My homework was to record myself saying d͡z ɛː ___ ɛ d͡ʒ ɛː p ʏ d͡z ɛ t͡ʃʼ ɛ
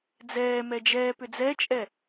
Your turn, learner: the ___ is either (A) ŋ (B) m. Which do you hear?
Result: B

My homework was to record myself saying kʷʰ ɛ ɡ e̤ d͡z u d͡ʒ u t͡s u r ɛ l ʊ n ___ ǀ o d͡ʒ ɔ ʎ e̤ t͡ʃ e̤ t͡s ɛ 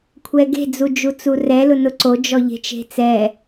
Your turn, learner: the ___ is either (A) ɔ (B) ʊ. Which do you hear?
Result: B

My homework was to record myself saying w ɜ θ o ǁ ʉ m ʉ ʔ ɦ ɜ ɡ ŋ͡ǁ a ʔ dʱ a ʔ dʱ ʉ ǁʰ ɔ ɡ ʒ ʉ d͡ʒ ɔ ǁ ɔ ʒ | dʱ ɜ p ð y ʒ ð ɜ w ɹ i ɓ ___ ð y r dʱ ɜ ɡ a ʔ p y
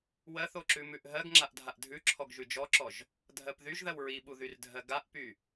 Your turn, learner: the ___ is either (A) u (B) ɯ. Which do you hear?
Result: A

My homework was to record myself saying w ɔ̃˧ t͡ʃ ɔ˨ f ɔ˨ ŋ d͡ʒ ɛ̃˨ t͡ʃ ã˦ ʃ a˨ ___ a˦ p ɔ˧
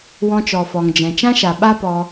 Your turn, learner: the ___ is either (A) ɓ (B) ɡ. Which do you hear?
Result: A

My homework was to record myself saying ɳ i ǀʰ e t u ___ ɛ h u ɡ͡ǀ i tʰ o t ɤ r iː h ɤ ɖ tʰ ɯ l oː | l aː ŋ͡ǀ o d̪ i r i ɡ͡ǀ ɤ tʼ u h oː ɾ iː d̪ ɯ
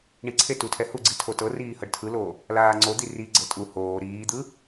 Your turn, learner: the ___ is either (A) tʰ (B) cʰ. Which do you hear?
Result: A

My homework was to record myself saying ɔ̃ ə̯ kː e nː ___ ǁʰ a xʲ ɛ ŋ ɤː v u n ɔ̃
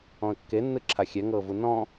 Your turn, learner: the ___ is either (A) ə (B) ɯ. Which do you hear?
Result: B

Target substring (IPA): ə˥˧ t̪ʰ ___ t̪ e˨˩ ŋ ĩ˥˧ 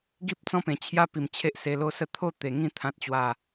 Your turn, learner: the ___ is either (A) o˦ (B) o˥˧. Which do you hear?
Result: B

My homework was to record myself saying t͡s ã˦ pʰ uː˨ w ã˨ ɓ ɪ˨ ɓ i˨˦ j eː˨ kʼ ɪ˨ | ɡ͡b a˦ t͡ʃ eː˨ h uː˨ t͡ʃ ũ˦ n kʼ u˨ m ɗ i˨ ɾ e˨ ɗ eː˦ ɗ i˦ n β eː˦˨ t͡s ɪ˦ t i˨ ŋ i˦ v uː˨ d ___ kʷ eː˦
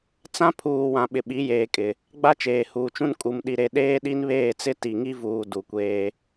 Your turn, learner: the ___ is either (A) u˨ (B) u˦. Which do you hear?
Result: A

